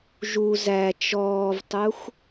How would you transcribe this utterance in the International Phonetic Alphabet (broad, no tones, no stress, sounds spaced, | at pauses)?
ʒ u z æ t͡ʃ ɔː v tˤ u x